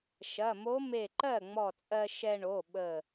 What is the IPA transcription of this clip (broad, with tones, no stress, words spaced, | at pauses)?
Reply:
ʃɐ˩˧˩mo˧˥ me˧˩ǃɜ˥˩ŋ͡mɔ˧˩t͡sʼɜ˧ ʃɛ˧ɳo˩˧˩ ɓə˧˩